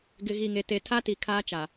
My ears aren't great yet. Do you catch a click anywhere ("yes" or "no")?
no